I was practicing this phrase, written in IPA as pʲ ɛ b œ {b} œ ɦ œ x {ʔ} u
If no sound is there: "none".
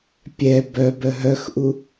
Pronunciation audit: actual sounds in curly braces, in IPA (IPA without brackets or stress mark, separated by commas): b, ʔ